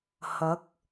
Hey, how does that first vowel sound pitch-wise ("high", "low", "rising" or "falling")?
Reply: rising